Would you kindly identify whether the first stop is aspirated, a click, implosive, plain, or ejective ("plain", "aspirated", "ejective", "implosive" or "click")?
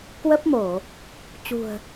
plain